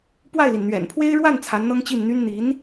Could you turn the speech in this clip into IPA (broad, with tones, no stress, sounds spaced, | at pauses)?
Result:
p w a˥˩ ɪ̯ l i˩ n n̪ ɥ ɛ̰˨˩ n pʰ w e˥ ɪ̯ ɻ w a˥˩ n t͡sʰ a˧˥ n n̪ ɤ˥ ŋ t͡ɕ i˥˩ n n̪ y˥ n n̪ i˧˥ n